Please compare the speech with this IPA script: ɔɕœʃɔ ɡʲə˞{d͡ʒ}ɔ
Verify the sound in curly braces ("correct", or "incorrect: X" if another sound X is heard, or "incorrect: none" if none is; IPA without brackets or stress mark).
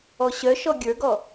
incorrect: ɡ